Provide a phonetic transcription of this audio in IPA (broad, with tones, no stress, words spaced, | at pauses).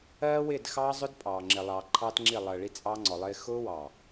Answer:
ɜː˦wɪː˦˨d xɑː˦zˤʊ˦d pʼɑː˨ ŋ͡ǁɪ˨lˠɑː˨ ǃʰɑː˦tŋ͡ǁi˦˨lˠəː˨ ɭi˦t͡sʼɑ˦ŋ͡ǀɔ˨lˠɪː˦ xʊː˦wɑ˨